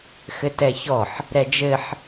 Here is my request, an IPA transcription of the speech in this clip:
x ɘ t ɛ ç ɔ ħ | ɾ ɛ d͡ʒ ɘ ħ

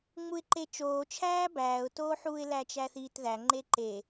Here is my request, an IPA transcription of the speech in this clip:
ŋ͡m u ɪ̯ ǃ e t͡ʃ oː t͡ʃʰ æː b æː ʊ̯ t oː ħ uː ɪ̯ l æ t͡ʃ æ θ iː t ð æ ŋ͡ǃ e ǃ e

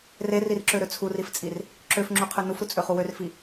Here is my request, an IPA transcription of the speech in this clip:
r e r i r ǁ ø ɾ ø t͡sʰ u r i f t͡sʼ i r | ǁ ø f ŋ͡ǁ u qʰ ø n u f ɾ u t͡sʼ ø χ u w ø r f i

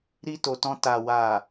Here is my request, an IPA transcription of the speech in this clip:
ɾ i˧ t o˨ t ɔ̃˧ t a˨ w a˨

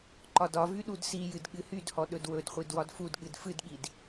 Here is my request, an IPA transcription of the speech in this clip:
ǃ ɒ d ɒ v y ɗ u d s i j ɨ d ɠ ɨ h y d h ɔ ɗ ɵ d w ɵ d χʷ i d w ɒ d f u d ɠ ɨ d f ɨ d ɠ i d

